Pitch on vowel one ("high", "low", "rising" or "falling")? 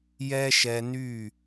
high